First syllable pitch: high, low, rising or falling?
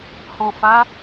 low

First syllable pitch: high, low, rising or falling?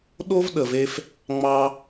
high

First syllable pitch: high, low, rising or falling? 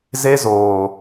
high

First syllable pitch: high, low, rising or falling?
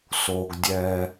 low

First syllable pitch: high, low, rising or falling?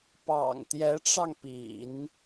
low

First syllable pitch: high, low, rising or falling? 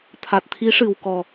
low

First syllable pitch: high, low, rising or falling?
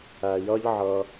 low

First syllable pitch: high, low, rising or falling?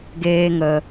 high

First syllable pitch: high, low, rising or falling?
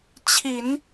low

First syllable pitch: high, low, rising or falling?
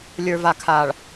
low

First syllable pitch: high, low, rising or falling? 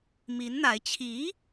rising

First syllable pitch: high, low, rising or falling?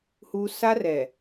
high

